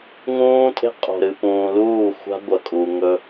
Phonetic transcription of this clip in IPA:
ŋ ũː˦ tʼ e̤˦ qʼ o̤˨ ɾ ɨ˨ p ũː˨ l uː˦˨ xʷ a̤˦ ɡʷ ɐ˨ kʼ u˨ ŋ ɵ˦

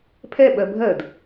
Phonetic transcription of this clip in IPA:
pʰ ɛ ɓ ɜ bʱ ɜ d

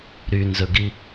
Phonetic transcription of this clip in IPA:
ɾ y n z ɵ ɡ i

